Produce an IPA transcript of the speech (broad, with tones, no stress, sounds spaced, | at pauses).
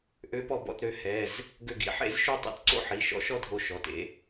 ʔ ø˨˥ p ɔ˧˩ b ɔ̰˧˩ t ɾ ø˨˥ h ɛ˩˧˩ z | ɡ ø˧˩ ɡ ḭ˨˥ ħ ḛ˥˧ z ʃ ʉ˥˧ tˤ ḭ˧˩ t ǀ o̰˥˧ ħ i˩˧˩ ʃ ɔ̰˨˥ ʃ ɔ˥˧ dʱ o˧˩ ʃ ɔ˩˧˩ t ḛ˨˥